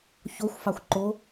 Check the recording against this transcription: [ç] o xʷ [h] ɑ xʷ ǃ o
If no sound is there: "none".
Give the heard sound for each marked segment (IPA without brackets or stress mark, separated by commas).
ç, f